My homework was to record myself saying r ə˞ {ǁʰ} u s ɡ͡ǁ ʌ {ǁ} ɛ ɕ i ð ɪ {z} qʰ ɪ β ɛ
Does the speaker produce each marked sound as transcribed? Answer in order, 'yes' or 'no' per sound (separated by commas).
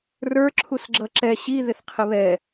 yes, yes, no